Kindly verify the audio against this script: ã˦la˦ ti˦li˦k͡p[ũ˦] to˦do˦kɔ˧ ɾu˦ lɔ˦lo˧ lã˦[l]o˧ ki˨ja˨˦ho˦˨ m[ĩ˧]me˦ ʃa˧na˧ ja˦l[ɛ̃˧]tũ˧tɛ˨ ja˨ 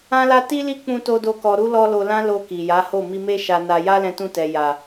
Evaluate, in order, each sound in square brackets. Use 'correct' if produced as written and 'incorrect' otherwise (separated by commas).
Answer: incorrect, correct, incorrect, correct